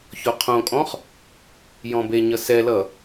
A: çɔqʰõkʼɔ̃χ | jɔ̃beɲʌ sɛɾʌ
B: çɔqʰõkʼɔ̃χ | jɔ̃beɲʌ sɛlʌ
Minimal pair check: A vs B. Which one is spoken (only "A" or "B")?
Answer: B